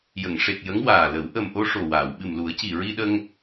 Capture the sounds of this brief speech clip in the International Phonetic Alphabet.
j ə˨˩˨ ŋ ʂ e˨˩ k̚ j ə˧˥ ŋ w aː˨˩ l ə˨˩˦ w ʔ ə˨˩ m ʔ o˧ ʂ o˨˩ w aː˨˩˨ w ɓ ɨ˨˩ m l u˨˩˦ ə̯ c i˨˩ ɹ i˧ ɗ ə˧ ŋ

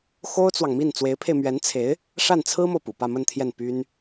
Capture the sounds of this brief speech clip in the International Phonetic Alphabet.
x o˥ ʊ̯ t͡s w ɑ˨ ŋ m i˥˩ n t͡s w e˧˥ ɪ̯ pʰ e˧ ɪ̯ m ɥ ɛ˧˥ n t͡sʰ e˧˥ ɪ̯ | ʂ a˥˩ n t͡sʰ ɹ̩˥ m o˨ ʊ̯ p ṵ˨˩ p ä˥˧ m ə˥˧ n t̪ʰ j ɛ˥˩ n p y˥ n

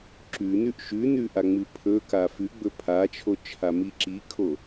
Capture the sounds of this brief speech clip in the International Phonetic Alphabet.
ǁ ʉ n ʉ ʔ ʃ ʉ n ʉ ʔ a ŋ͡m ɨ pʰ ɵ k a f ʉ ɡ͡b ɵ pʰ a t͡ʃʰ o t͡ʃʰ a m i ǁ i kʰ o

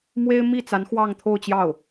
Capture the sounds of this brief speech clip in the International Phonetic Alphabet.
m w e˥ ɪ̯ m i˥˩ t͡s a˧˥ n x w ɑ˥˧ ŋ t̪ʰ o˥˧ ʊ̯ t͡ɕ j ɑ˥˩ ʊ̯

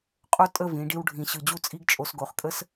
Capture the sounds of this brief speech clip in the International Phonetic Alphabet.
qʼ o˥ tʼ ə˥˧ v ĩ˩˧ ɖ i˥ w ɖʱ ĩ˧˩ ɕ ɯ˧˩ d͡ʑ u˥˧ t͡sʼ i˥ ɡ t͡ʃʼ o˧ s ɡ o˧˩ χ kʼ ə˥ s

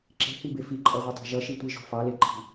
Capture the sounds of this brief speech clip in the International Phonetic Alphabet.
ǁ e̤ h i b e f i ǃʼ ʌ ʁʷ i tˤ ɑ̤ ʒ ʌ ʃ i tʷ i ʒ o̤ f ɑ l e ǃʰ i̤

